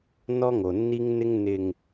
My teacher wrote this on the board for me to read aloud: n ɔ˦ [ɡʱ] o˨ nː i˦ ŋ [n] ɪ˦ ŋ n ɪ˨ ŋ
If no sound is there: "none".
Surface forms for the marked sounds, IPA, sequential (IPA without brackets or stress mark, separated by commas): ŋ, n